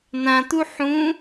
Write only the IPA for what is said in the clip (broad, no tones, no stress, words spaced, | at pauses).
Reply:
nãt̪u ħũ